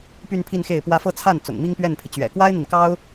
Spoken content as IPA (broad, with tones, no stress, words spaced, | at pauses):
py˥˧npʰi˥˧nxe˥˩ɪ̯pwä˥ fɤ˥˧t͡sʰa˥˩n t͡sʊ̰˨˩ŋmi˥ŋpɥɛ˥˩npʰi˩ t͡ɕɥɛ̰˨˩kwa˥ɪ̯n̪i˨nkɑ˥ʊ̯